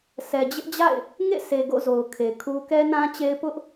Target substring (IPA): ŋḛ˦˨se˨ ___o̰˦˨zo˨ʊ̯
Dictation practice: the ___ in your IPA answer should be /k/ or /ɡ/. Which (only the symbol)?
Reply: ɡ